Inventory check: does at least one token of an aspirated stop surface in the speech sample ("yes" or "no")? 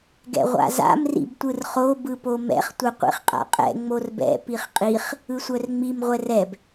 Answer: no